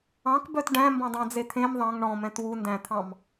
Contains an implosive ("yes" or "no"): no